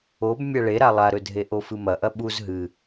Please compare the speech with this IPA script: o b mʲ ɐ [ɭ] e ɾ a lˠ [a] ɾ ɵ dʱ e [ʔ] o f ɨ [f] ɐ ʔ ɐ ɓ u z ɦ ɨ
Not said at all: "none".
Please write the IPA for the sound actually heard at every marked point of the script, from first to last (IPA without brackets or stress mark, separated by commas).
ɭ, a, ʔ, m